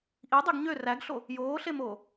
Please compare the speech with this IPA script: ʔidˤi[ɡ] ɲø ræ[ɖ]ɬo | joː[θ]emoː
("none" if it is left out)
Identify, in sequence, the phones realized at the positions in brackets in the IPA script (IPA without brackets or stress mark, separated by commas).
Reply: ɡ, ɡ, ɬ